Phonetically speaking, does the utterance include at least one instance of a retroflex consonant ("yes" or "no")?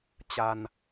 no